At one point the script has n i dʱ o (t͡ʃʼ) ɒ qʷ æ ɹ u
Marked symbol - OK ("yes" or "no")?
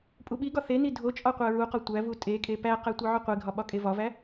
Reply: yes